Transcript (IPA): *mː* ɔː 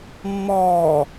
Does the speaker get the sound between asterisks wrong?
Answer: no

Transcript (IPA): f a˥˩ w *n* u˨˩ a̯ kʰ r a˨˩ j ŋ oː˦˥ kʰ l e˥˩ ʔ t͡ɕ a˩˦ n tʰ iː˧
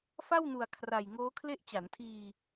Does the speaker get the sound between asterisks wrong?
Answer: no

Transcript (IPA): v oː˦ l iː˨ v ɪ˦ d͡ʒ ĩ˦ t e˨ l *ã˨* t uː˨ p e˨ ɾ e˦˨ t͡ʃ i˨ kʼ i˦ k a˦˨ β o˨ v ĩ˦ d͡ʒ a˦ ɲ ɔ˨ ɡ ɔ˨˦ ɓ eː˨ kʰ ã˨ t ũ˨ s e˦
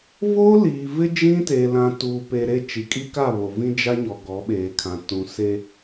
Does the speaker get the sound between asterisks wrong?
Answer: no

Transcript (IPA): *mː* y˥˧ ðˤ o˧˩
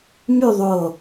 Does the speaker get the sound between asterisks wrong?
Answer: yes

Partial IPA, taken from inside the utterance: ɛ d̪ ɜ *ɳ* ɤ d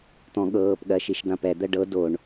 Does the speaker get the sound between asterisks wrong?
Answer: yes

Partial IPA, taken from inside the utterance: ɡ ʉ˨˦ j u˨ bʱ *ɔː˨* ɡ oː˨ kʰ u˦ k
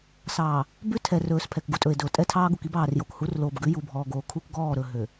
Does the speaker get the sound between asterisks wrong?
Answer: no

